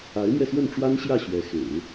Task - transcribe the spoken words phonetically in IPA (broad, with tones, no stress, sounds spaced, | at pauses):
a˧˥ ɪ̯ m ɥ ɛ˧ s w ə˥˩ n ʈ͡ʂ w a˥ n ɕ j ä˥˩ ɕ ɥ ɛ˧˥ x ḛ˨˩˦ ɪ̯